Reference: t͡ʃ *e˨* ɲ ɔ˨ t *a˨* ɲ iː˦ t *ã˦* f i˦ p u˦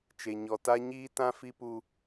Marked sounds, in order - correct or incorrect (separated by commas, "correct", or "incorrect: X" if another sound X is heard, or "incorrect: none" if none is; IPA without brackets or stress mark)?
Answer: correct, incorrect: a˦, correct